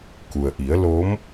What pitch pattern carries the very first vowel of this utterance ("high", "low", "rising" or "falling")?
low